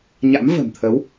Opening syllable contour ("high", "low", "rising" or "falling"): rising